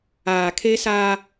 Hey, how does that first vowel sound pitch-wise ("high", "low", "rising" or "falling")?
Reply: low